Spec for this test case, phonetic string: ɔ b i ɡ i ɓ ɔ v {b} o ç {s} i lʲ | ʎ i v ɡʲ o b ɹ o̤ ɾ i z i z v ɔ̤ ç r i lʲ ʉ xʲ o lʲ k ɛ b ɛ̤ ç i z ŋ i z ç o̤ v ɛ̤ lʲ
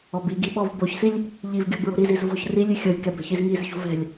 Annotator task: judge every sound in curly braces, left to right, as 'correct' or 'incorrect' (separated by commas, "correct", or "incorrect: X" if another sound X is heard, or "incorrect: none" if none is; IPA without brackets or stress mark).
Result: correct, correct